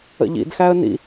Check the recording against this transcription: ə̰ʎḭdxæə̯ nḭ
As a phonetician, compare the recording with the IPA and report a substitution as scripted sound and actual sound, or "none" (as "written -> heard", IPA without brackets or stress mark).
none